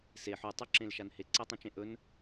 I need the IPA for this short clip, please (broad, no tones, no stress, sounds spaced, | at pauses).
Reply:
s e ħ u tˤ ʉ ǁ ẽ l ʃ a n h e ǀ e tˤ ũ t͡ʃ ẽ ʔ ɵ n